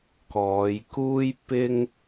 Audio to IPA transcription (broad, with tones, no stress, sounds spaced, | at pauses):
k ɔː˨˧ j k uː˥ j p ɪ˧ ŋ